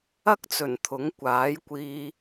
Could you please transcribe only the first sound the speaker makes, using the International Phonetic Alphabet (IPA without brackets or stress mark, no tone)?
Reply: ɐ